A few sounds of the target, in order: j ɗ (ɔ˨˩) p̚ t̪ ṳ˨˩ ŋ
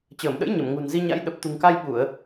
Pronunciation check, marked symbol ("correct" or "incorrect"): incorrect